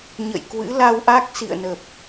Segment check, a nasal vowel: absent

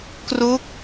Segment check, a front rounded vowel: absent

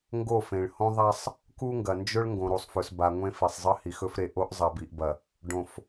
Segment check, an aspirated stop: absent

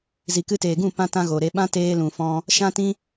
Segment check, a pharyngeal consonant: absent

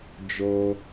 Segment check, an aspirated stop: absent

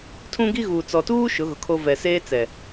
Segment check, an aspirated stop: present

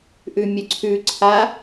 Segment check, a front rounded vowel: present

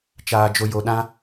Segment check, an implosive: present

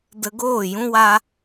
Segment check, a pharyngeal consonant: absent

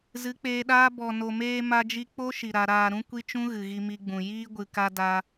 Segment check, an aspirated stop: absent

